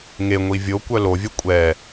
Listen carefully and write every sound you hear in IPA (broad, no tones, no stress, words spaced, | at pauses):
ŋe ŋʷivʲokʷœ lovʲœ kʷʼɛ